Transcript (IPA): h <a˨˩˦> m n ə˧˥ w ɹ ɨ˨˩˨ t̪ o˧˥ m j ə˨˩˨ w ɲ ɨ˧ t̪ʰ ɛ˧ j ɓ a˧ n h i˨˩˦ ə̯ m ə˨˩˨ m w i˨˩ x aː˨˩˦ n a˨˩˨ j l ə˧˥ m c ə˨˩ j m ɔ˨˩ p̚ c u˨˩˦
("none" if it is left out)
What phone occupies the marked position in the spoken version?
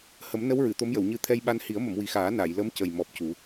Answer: ə˨˩˦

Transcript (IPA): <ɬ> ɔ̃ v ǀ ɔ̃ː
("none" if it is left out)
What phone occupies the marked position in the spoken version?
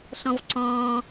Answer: ɬ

